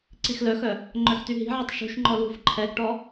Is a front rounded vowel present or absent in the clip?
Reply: present